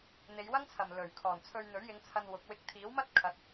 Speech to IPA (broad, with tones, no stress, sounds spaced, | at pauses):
n̪ e˨˧ j w ɐ˥ ŋ t͡sʰ ɐ˨ m l ɵ˨˩ ɥ kʰ ɔː˨˩ n t͡sʰ ɵ˧ ɥ n̪ ɵ˨˥ ɥ j ɪ˨˧ ŋ t͡sʰ ɐ˧ n w ʊ˨˥ k̚ w ɪ˧ k̚ t̪ʰ iː˨˥ w m ɐ˥ t̚ kʰ ɐ˨˥ t̚